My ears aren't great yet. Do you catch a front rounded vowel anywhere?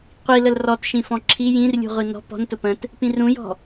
no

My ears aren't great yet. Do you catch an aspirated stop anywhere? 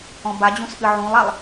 no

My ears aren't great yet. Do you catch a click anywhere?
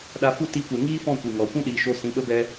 no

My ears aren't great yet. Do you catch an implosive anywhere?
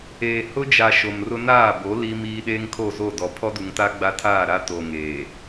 yes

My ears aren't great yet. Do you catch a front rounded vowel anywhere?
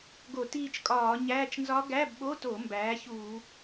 no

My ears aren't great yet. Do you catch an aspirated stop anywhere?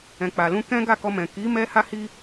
no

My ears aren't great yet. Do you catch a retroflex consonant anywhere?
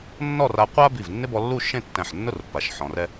no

